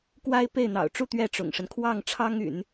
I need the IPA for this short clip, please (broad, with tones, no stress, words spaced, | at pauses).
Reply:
kwa˥ɪ̯ pe˥˩ɪ̯n̪ɑ̰˨˩ʊ̯ʈ͡ʂu˥˧ t̪ɥɛ˥˩ʈ͡ʂʊ̰˨˩ŋʂə˦n kʰwɑ˥˩ŋʈ͡ʂʰɑ˥ŋy̰˨˩˦n